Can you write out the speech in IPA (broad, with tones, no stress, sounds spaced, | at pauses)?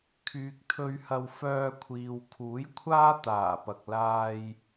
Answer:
kʰ yː˨ k̚ t̪ʰ ɵ˧ ɥ h ɐ˧ w f œː˧ kʷʰ iː˨ w kʰ uː˨˥ j kʷʰ aː˥ t̪ aː˨˩ p ɐ˨ k̚ l aː˧ j